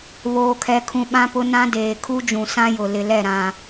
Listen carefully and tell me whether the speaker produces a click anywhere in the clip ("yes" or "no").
no